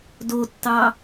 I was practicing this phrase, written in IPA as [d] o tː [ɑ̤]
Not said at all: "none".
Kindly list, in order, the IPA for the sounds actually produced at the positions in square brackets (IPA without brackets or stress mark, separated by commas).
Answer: d, ɑ